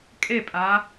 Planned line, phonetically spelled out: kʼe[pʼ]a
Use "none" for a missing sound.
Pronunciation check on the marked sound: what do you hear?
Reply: pʼ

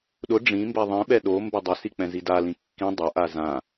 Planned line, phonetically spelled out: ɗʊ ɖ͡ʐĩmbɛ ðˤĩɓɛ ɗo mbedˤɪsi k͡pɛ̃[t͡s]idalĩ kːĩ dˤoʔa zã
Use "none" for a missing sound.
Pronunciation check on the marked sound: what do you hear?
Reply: z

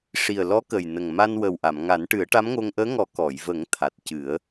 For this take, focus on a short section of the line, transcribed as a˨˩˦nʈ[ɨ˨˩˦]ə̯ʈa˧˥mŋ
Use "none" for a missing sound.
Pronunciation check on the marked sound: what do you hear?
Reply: ɨ˨˩˦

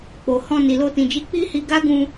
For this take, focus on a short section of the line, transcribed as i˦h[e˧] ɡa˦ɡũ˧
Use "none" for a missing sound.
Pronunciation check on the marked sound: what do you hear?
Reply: i˧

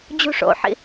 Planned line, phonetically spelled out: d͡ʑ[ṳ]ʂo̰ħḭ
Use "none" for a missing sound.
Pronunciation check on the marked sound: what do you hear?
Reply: ṳ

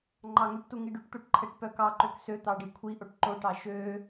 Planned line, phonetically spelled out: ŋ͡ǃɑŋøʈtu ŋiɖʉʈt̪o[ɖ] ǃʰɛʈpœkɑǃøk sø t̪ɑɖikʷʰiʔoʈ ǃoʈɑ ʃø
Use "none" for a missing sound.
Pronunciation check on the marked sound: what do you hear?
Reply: ʈ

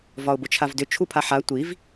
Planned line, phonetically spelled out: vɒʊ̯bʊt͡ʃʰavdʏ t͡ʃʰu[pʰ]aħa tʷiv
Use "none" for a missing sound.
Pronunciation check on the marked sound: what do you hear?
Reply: pʰ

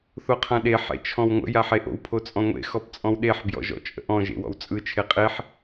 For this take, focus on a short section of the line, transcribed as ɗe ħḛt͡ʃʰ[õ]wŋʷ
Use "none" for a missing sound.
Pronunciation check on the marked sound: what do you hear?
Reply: ɔ̃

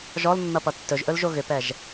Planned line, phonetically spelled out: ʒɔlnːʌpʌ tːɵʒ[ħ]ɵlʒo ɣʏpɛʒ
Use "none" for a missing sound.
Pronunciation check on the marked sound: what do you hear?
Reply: ʔ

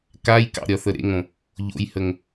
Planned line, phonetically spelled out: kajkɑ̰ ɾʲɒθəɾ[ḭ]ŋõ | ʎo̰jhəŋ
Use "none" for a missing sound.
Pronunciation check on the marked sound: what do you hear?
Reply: ḛ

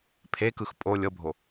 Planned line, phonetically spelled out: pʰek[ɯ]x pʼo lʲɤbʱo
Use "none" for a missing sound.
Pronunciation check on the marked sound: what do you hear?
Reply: ɯ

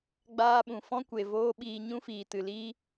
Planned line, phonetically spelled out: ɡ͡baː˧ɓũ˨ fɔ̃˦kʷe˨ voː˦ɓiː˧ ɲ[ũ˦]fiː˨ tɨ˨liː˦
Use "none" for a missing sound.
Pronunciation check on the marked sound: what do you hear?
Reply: ũ˦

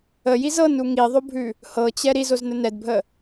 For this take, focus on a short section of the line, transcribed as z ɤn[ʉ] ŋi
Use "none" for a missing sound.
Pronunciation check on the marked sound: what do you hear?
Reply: u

